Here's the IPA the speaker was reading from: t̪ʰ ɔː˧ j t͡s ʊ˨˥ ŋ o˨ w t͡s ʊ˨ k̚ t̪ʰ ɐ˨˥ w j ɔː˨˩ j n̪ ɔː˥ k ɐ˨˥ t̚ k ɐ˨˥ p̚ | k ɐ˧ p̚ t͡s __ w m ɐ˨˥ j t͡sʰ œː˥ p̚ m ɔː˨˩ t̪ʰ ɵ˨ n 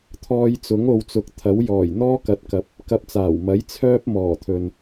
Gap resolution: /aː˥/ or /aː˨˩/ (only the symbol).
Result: aː˨˩